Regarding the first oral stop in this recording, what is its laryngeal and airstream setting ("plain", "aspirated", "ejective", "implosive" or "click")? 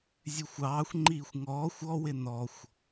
click